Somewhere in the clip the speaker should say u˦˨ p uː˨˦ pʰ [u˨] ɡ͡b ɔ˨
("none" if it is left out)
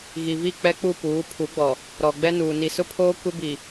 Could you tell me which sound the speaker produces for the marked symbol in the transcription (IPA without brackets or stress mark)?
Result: u˨˦